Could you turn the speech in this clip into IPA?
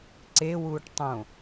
ǀ e w uː ʈ tˤ õ

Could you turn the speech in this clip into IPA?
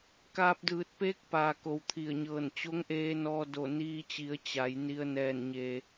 k aː˧ p̚ d ɯː˧˩ t̚ p eː˧˥ k̚ p aː˩ k o˩ w t̪ʰ i˧˩ ə̯ ɲ ɤː˧˩ n t͡ɕ o˧˥ ŋ ʔ eː˧ n ɔː˧ d o˧˩ n iː˧ t͡ɕ i˩˧ ə̯ t͡ɕ a˩˧ j n i˧ ə̯ n ɛː˧˩ n ɲ eː˩

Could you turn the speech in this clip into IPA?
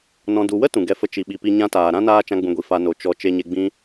n ɔ̃˨ d u˨ w ə˦ t ũ˨ ɡ ɛ˦ f ə˦ t͡ʃ i˨ ɓ i˨ p i˧ ɲ ã˦ t aː˨ ɾ ã˦ n aː˧ t͡ʃ ã˦ ɡ͡b ũ˧ ɡʷ i˨ f a˧ n o˨ t͡ʃ ɔ˨ t͡ʃ e˧ ɲ e˧ ɡ͡b ĩ˦

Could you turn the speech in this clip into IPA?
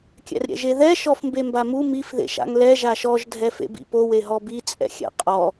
kʲ ɛ̰ r ɾʲ ɛ̰ ʒ e ð ɛ ʃ ɔ f m b e m b a m u m i f ð ḛ ʃ a̰ ŋ l ɛ ʒ a ʃ ɔ ʒ dʱ ɛ f ḛ b ḭ p o w e ɦ ɔ b i t͡sʼ ɛ̰ xʲ ɛ̰ qʼ ɔ

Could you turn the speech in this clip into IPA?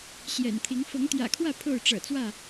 ɕ j ɛ̰˨˩ n t̪ʰ i˨˦ ŋ f ɤ˨˦ ŋ t̪ j ä̰˨˩ kʰ w ä˥˨ pʰ o˥˨ ʊ̯ ʈ͡ʂ ɤ̰˨˩ t͡s w ä˥˨

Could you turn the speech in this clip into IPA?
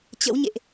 t͡ɕ ə̰˧˥ w ɲ ḛ˧˨ ʔ

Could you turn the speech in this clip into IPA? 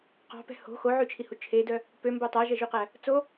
q ɑ̤ p ɛ̤ h o̤ x o ʕ y t͡ʃʰ i h u t͡ʃʰ e d œ | p ø m b o tˤ æ ʒ ɛ ʒ ʉ q æ | t͡s o

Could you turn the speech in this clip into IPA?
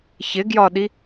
ç ɪ ɡ j ɒ ɗ i

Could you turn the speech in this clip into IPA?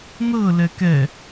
n̪ ɤ l ɛ k ɛ

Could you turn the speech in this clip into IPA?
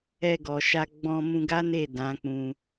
ɛ˧ ɡ ɔ˨ ʃ a˧ ɡ͡b ɔ̃˧ m ũ˧ ɡ a˦ n e˦˨ d ã˨˦ k͡p ũ˧

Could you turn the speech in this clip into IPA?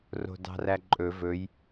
r o̤ d ɑ̤ r æ ǃʼ ɵ v ɵ j

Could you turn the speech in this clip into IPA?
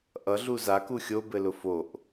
ʔ ʌ ɮ u z a k u xʲ o b ɘ l ʊ f o ʔ

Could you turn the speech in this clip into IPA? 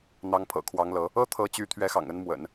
n̪ ɑ˧˥ ŋ pʰ ɤ̰˨˩ kʰ w ɑ˧˥ ŋ l ɤ˧˥ | ɤ˥ t̪ʰ ɤ˧˥ t͡ɕ y˧˥ t̪ʰ ɥ ɛ˧˥ x ɑ̰˨˩ ŋ ə˧˥ n m w ə̰˨˩˦ n

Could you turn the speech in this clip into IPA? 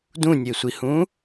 d ũ nʲ e sʷ i h ũ

